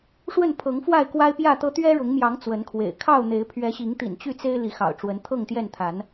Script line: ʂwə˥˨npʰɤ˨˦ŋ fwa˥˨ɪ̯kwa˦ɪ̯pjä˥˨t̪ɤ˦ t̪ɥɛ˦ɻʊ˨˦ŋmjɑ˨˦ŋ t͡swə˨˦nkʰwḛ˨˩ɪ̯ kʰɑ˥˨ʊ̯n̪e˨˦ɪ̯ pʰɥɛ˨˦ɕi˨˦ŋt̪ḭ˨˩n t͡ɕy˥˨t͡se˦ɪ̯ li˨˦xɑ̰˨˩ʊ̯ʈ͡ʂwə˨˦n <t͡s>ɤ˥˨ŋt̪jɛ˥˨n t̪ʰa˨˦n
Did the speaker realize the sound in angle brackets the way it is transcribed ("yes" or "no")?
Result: no